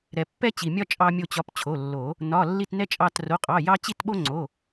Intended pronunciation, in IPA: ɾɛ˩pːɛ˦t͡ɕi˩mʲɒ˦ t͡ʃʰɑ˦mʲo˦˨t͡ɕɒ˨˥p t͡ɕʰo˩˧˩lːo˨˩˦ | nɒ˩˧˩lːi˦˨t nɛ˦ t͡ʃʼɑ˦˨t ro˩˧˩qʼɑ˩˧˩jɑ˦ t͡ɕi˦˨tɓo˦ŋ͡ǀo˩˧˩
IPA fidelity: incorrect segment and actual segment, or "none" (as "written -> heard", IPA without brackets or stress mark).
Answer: t͡ʃʰ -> t͡ʃʼ